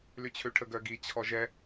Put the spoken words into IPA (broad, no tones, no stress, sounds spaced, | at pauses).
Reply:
l y t͡ɕʰ ø ʈʰ ə ɡ œ ɡ i t͡ɕʰ ɔ ʒ ɛ